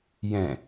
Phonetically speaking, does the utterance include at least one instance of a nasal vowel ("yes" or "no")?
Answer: yes